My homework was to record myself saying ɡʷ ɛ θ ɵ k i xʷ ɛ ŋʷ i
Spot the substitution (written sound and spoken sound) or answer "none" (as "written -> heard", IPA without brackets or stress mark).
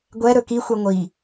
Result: θ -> ɾ